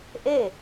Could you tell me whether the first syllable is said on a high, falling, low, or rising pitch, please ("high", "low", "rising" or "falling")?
falling